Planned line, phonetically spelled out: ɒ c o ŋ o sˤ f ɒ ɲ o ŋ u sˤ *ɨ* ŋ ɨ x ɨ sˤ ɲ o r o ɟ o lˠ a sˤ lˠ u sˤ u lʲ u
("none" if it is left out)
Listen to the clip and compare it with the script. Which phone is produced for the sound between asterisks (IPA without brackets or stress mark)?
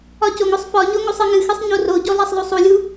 ɨ